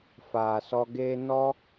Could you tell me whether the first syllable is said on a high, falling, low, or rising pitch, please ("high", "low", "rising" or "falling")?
low